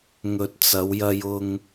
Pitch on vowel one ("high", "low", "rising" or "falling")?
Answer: low